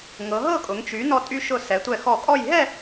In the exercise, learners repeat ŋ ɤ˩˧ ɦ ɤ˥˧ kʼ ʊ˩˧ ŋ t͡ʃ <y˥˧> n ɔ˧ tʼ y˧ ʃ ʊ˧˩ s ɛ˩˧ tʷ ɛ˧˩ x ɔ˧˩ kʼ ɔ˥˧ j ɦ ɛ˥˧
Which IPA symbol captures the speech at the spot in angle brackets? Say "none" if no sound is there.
y˩˧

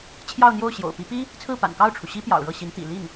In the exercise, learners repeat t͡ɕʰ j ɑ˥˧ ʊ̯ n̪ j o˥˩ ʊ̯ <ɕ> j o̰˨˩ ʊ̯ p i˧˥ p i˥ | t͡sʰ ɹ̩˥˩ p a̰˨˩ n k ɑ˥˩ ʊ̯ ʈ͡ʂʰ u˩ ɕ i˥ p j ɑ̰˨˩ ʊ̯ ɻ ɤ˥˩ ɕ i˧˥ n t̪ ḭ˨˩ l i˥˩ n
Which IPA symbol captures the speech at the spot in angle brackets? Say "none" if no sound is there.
ɕ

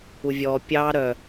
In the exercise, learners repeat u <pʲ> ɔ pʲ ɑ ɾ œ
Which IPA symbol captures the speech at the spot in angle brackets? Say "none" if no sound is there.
vʲ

